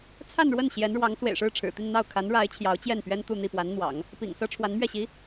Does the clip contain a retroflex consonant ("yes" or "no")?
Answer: yes